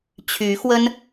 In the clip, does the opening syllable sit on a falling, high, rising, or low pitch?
rising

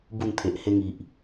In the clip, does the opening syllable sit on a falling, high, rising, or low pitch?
falling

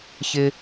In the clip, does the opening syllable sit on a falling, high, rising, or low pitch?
high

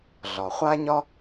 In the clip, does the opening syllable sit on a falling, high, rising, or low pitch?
low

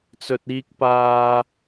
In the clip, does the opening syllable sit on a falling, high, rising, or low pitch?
low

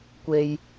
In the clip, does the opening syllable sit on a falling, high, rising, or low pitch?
low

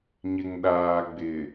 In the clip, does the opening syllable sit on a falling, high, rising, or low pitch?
low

